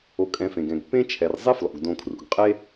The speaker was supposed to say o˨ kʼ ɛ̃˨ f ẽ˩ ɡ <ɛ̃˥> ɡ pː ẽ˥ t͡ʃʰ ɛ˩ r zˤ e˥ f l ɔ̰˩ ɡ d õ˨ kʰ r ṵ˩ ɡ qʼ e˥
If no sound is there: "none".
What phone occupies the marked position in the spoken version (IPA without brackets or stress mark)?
ɛ̃˩